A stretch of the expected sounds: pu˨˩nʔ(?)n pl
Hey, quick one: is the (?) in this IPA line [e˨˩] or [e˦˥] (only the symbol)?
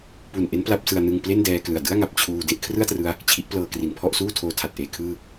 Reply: e˦˥